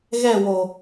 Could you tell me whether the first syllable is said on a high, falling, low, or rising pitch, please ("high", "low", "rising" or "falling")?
falling